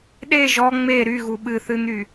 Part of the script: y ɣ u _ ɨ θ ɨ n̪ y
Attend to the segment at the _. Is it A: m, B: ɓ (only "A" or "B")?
B